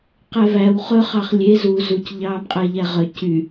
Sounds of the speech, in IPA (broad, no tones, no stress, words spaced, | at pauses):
qɛvæw χɵ χɑχlʲe zu zuc ʎɑːmqʼæʎæʁœ cy